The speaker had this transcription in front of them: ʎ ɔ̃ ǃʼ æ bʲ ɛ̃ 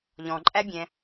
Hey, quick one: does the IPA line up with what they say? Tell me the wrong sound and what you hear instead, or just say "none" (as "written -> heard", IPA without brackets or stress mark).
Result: none